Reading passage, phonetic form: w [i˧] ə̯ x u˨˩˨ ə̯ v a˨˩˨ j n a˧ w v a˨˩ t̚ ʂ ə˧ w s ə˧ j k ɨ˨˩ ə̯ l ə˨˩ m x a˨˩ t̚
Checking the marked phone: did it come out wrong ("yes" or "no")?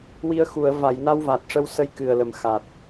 no